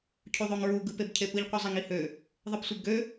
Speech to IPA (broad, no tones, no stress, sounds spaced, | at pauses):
cʰ u ðˤ o ŋ ɹ u ɡ ɯ p e b cʰ e p ɯ ʎ qʷ ɯ zˤ e ŋ i h ø | ðˤ ɯ p sʷ e b ɡ ø